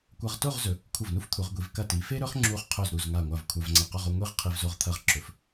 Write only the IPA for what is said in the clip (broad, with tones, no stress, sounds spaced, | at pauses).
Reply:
kʷ ɐ˧ ʁ t o˥˧ ʁ z ɵ˩˧ | kʷʰ ɐ˧˩ v n u˥ f t̪ʰ u˩˧ ʁ ɡʷ i˩˧ v k ɐ˧˩ t i˩˧ f e˥ ɾ ɵ˥ χ ŋ͡ǁ u˧ χ qʰ ɵ˧˩ z ɾ u˧˩ z ŋ a˧˩ ŋʷ a˧˩ v kʷʰ a˧ v ŋ͡ǀ ɐ˧˩ q o˥˧ ʁ o˥˧ ŋʷ i˥˧ ʁ qʰ i˧ v z o˧ ʁ t̪ʰ ɐ˧ ʁ ǁ ɵ˩˧ f